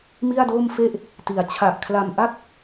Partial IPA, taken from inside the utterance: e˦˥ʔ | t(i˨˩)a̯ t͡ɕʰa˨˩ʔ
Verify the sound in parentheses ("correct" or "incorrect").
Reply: incorrect